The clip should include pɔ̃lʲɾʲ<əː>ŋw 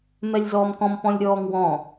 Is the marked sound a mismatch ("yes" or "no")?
yes